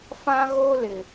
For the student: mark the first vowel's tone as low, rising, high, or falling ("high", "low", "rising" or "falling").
high